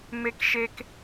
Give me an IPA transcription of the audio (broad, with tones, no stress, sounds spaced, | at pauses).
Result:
m e˦ k ʃ e˦ k